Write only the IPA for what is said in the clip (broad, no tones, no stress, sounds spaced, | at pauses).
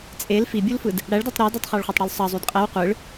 t͡sʼ e l f i bʲ u l f ɯ d | ɽ æ ɭ d ɑ tˤ ɾ ɑ d o tˤ χ ɑ ɭ χʷ æ tˤ ɽ y l sˤ ɑ zˤ y d qʼ æ w qʷ ɯ ɭ